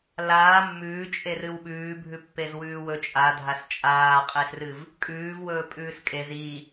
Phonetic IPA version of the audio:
l aː mː ʉː t͡ʃʼ e r ɨ w ɓ ʉː bʱ ʉ pː e z w ʉː w ɵ t͡ʃʼ a dʱ a s t͡ʃʼ aː qʼ e s r ɨ v | kʼ ʉː v w ɵː pʼ ʉː s kʼ e z i

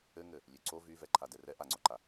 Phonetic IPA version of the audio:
ɘ ŋ ɘ | lʲ ø ǀ o v y v ɛ ǃʰ a d ɛ r ɛ ʔ a ŋ͡ǀ o ǃ a

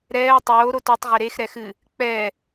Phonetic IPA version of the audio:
ɾ ɛː ə̯ tˤ oː ɾ o t o tˤ ʁ e ɾ e x ɾ ɛ x ɨ | k͡p ɛ

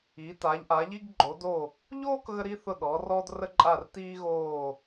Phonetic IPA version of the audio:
i˩˧ t a˩˧ ʎ ʔ a˩˧ ʎ i˧ ɡ ɡ͡ǃ o˩˧ d o˧˩ | ʎ oː˥˧ k ɣ ə˧ ɾ i˧ θ ʊ˧˩ ɗ ɔ˩˧ r ɔ˧ d r ə˧ ǃʼ a˧˩ r t iː˧ ɣ oː˧˩

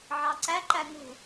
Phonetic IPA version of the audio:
ʕ ɑ ǀ æ ǃ æ ŋ ṳ

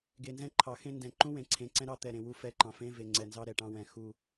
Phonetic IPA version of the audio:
ɡ e˨ n z ɛ̃˦ ǃʰ ɑ˨ x ẽ˦ n d ɛ̃˨ ǃ ũ˦ w ẽ˨˦ ǀʰ ẽ˨ ǀ ɛ̃˦ ɾ ɑ˦ t̪ ɛ˨ ɾ ẽ˨ w u˦ f ɛ˦˨ ǃ ɑ̃˨ f ẽ˦ v e˨ ŋ͡ǀ ɛ˨ n z ɑ˦ ɾ ɛ˨ ʈ ɑ̃˦ w ɛ̃˨ x u˨

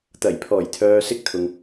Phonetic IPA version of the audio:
t̪ ɐ˨˩ j pʰ ɔː˨˩ j t̪ʰ œː˨ s ɪ˥ k̚ t̪ʰ ʊ˨ ŋ

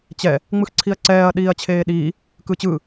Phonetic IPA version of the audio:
t͡ɕ ɛ | ŋ͡m ɯ x ǀʰ i ɐ̯ ǀ ɛː ɐ̯ ɗ iː ɐ̯ t͡ɕʰ eː ɗ iː | k ɯː t͡ɕ ɯː

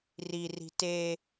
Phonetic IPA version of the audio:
r i r i̤ t e

